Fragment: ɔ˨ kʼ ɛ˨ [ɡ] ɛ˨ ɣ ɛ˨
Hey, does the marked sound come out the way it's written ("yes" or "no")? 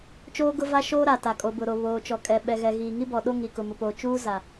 no